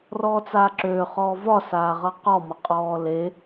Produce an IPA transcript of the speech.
r ɔː t͡s aː ǁ øː χ ɔː v ɒ s aː ʁ ʌ q ɔ m ʌ qʼ ɔː l e

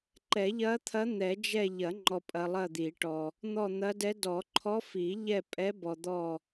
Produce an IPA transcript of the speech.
ǃ ɛ˨˩˦ ʎ ɐ˧˥ t̪ʰ ɐ˧˥ n̪ ɛ˨˩˦ d͡ʒ ɛ˦˨ ʎ ɐ˨˩˦ ŋ͡ǃ ɔ˨ pʼ ɐ˨ lˠ ɐ˦˨ d̪ i˨˩˦ ʈ ɔ˨ | n̪ ɔ˦˨ n̪ ɐ˧˥ d ɛ˧˥ d ɔ˨˩˦ ǃʰ ɔ˧˥ f i˨˩˦ ʎ ɛ˦˨ pʼ ɛ˧˥ b ɔ˨ d̪ ɔ˦˨

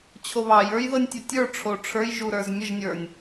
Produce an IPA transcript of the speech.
t͡ɕʰ o β ɑ j ə˞ j ð ɤ nʲ tʲ o tʲ ə˞ ʈ͡ʂʰ o ʈ͡ʂʰ ə˞ j ʒ u ɾ ə˞ z mʲ ɤ ʒ nʲ ə˞ nʲ

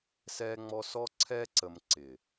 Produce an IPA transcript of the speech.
s ɛː˦ ŋ͡m ɔ˦ s ɔ˦ ǀʰ ɛː˦ ǀ ə˨ m ǀ ɪː˨

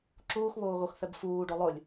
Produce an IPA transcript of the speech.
ǁ uː x β oː ɣ o x θ ɛ b f uː ɖ o lˠ ʊ lʲ

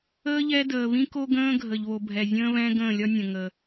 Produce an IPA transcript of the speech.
əː˦ ʎ ɛ˦ d əː˨ β ĩ˦ k o˦ ɡ ə̃ː˦ ɡʱ ə˨ ʎ β o˨ bʱ ɛ˨ zʲ ə̃ː˦ β ɛ̃˦ ɡ ə̃ː˦˨ lʲ ɒ˦ nʲ ə̃˨ ŋ ə˨

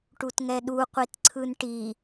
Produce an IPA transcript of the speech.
ʈ u t ŋ ɛ ɗ u qʷ i t ǀʰ ɯ n ʈ i

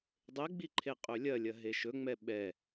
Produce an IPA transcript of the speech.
dˤ e ɡ͡b i ǃʰ e qʼ ɵ lʲ ɐ lʲ ɐ ɦ e ʃ ɵ ŋ͡m ɛ ɓ ɛ

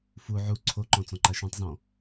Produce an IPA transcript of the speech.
f u ʕ u ǀʰ o ǃ ɔ̃ t͡s ɔ̃ ǃ a ʃ ũ tˤ z ɔ̃

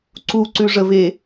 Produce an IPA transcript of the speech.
ǀ u ǀ ʉ ʐ ə v e

